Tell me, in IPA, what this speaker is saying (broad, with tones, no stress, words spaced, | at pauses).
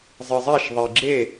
zˤɨ˩zˤɛ˥˩ʃðˤi˩ɡ͡ǁe˥˩